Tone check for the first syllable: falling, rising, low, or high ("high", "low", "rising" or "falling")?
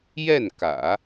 falling